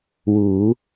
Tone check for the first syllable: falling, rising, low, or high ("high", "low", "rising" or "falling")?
rising